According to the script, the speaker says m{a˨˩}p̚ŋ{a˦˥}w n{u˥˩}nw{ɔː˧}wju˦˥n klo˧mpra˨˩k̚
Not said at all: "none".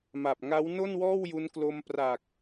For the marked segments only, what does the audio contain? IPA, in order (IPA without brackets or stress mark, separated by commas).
a˨˩, a˦˥, o˥˩, ɔː˥˩